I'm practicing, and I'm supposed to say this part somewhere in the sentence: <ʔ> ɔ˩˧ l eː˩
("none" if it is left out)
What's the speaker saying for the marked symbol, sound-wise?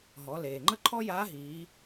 ɦ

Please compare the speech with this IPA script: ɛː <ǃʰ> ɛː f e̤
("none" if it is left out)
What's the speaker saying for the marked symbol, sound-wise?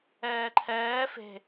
ǃʰ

